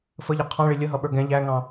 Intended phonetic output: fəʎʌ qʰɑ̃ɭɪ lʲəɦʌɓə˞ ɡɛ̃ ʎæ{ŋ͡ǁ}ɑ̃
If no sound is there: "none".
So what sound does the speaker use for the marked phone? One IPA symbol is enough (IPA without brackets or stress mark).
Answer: ŋ